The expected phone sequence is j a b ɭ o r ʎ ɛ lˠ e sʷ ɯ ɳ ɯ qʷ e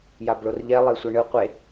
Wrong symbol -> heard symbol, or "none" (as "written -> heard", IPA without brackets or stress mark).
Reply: none